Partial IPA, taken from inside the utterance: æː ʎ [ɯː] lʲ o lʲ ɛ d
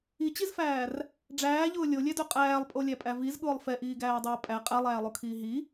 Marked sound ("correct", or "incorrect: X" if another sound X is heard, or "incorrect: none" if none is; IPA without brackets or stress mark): incorrect: ʊː